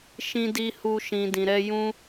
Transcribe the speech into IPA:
ʃĩ˧di˧ hu˧ ʃĩ˨ dĩ˨ɾɛ˧ jũ˦

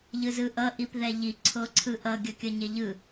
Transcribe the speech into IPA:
ʎɯzɯʔʌ ʔipðɛʎi ǀʰoǀʰɯʔʌ ɡʲʌkʲʌɲeʎɯ

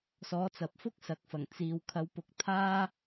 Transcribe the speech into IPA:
sɔː˨˥t͡sɐ˨p̚fʊ˥k̚ sɐ˨˥k̚fɐ˨˩ŋ t͡siː˨w kʰɐ˨˧wpʊ˨˥k̚ t̪ʰaː˥

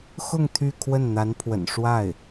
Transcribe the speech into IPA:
xʊ˥˧ŋ t̪ʰy˥˧kʰwə˥˩nn̪a˧˥npʰwə̰˨˩n ʂwa˥˩ɪ̯

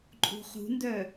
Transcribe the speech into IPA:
ǃʼṳχṳndœ

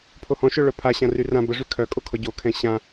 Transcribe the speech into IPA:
pʰohɔ̃ʃœ ɭœpʰa ɕãryrã bəʐy kʰœkʼokʰɔ ɟokʰɛ̃ ɕã

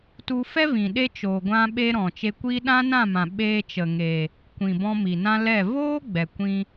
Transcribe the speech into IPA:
tu˧fɛ˦ vĩ˨ ɗe˦t͡ʃoː˨ ɡʷã˦ɓe˦ ɾɔ̃˨t͡ʃe˧kʷiː˦ ɗã˦nã˦˨mã˨ ɓeː˧t͡ʃə˨ŋeː˨ | kʷĩ˨bɔ̃˧ mi˨nã˦lɛ˦˨ voː˦ ɡ͡bɛ˨kʷĩ˧

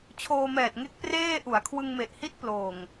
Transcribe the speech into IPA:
t͡ɕʰoː˧mɛː˨˩t̚ŋe˦˥k̚ preː˥˩ ʔu˩˦a̯kʰwɯ˧ŋme˨˩ʔhi˦˥t̚ ploː˨˩ŋ

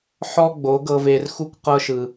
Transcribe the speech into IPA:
ħɔ˦ ɡ͡bo˨˦ɡɤ˧ve˧rxu˦kʷ qɤ˦ʃɯ˧

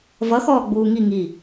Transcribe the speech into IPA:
vʌ xɔːɡ͡buːŋi ŋi

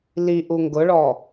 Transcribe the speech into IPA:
liʔu ŋɡʊɭɔ

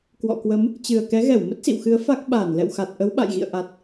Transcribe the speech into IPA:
kwɔ̰˧˨kwə˨˦m | t͡ɕɨ˨˩ə̯kɛ˨˦ɣɛ˧˩w mə˦˥t̚sḭ˧˨wxɨ˨˦ə̯ fa˦˥k̚ ɓaː˧˩nlɛ̰˧˨wxa˨˩t̚ ʔə˨˦wɓa̰˧˨jɣḭ˧˨ə̯ ʔa˨˩t̚

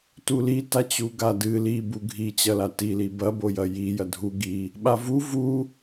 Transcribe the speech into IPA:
tulitat͡ɕu ɡadɨ li buɡʱi t͡ɕɐlatili bɐbo jɐji jɐdʱu ɡi | ɓavu vu

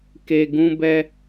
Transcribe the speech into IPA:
ke˨ ɡũ˦bɛ˦

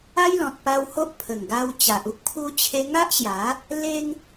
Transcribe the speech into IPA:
a˦jlɔ̃˨t̚pa˧w ho˦ʔ pʰə˨˩ŋɡa˧wt͡ɕa˨ʔu˦k̚ pʰu˦t͡ɕʰe˦ ŋa˦ʔɕja˨˦ | le˦ŋ

